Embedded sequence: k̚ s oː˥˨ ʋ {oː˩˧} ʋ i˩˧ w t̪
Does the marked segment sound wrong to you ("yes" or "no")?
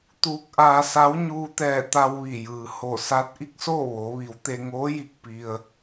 no